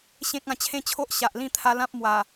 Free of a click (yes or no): yes